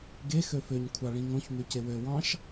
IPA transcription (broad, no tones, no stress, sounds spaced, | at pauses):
ɡ e x ø f ø ɲ kʷʰ ɑ ɭ ĩ ŋ õ ç m y c e w ø w ɑ̃ ʃ